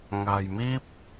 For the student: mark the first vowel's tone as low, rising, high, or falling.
low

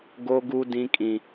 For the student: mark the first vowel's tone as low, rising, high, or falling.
high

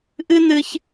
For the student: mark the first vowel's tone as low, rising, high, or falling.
high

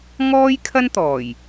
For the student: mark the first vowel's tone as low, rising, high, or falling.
high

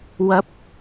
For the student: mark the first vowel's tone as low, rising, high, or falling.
rising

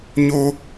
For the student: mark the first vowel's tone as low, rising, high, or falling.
high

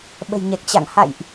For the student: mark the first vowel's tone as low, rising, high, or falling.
low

